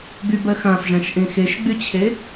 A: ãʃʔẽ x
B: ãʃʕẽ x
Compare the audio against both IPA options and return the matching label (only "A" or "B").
A